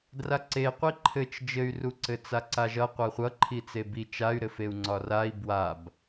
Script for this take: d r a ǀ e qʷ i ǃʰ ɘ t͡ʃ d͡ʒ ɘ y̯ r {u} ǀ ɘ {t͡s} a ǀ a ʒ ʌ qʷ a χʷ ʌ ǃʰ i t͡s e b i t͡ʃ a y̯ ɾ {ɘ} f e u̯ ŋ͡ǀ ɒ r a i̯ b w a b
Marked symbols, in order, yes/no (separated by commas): yes, yes, yes